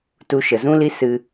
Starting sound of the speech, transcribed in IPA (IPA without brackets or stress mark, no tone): t